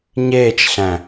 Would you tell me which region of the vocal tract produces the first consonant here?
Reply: palate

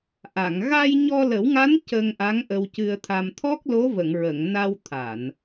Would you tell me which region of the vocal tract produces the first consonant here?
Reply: throat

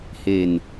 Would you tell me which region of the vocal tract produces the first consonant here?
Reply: throat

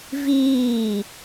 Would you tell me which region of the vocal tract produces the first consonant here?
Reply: lips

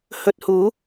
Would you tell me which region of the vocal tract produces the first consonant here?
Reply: throat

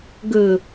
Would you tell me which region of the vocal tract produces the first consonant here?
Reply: velum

